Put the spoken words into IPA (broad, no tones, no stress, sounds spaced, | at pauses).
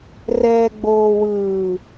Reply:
r ɛː ɡ͡b oː w ɯː